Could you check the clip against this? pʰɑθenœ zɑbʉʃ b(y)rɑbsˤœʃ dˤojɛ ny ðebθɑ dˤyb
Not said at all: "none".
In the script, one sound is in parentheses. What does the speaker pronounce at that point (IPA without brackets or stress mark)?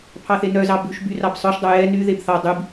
y